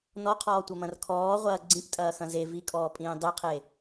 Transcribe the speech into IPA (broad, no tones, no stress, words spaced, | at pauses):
nɔqʰɔːtʷɐmɐ̃r kʰɔːʁʷɐː ɡ͡ǀĩptʼɐːxɐ̃ ze vikʼɔːpʼĩː dˤiqʰe